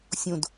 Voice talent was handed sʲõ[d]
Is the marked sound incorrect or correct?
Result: correct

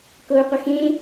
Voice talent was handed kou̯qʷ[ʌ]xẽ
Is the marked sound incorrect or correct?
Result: correct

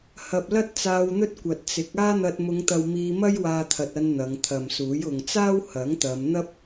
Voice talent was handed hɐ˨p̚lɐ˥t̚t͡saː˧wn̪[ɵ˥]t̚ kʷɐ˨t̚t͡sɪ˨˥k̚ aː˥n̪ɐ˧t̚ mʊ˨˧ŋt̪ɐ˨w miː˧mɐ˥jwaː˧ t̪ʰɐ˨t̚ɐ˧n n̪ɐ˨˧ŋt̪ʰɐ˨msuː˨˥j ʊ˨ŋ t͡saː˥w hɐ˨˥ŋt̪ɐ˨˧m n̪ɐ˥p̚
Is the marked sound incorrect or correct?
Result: correct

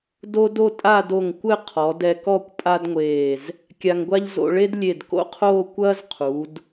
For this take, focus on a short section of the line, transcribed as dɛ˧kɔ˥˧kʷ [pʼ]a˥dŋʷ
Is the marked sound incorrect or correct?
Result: correct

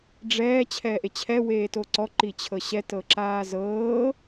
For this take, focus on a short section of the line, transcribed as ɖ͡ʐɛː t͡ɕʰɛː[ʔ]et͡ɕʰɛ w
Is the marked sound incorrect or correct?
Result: correct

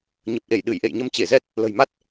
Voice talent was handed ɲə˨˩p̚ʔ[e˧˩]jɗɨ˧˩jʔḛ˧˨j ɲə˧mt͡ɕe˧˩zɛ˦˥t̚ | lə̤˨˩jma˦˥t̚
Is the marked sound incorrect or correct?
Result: correct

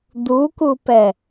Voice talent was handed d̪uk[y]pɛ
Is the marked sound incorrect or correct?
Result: incorrect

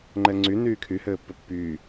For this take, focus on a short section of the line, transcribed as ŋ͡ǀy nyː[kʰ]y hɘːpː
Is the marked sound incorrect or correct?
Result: correct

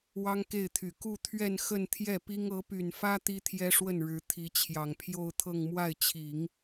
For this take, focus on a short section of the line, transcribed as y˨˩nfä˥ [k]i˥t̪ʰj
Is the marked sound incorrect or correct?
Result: incorrect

